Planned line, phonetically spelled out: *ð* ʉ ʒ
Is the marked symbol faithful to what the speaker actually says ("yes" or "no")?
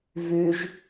no